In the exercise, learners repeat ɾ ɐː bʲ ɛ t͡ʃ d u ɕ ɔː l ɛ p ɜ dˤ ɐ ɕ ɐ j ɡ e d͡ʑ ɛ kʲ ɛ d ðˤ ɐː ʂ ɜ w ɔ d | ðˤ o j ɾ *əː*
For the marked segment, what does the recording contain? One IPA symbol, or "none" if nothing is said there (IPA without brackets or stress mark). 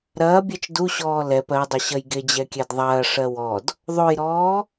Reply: ɔː